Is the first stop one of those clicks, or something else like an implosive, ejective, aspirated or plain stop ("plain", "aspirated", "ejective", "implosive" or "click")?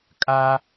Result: ejective